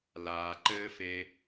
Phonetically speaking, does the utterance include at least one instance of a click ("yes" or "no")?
yes